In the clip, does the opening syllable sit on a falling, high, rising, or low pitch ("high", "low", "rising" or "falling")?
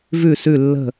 falling